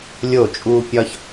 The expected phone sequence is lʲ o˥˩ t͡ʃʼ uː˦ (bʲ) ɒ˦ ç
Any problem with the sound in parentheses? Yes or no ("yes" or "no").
yes